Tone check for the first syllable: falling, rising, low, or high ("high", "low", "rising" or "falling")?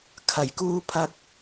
low